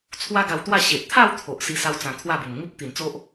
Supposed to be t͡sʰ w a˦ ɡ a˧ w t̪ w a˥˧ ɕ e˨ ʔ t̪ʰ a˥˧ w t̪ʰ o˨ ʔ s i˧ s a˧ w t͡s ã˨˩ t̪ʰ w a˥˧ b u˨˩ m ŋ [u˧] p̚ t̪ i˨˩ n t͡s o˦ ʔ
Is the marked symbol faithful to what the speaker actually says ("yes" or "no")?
no